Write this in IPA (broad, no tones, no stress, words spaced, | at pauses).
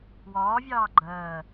wɒːvʲɑː ɡ͡ǃɜː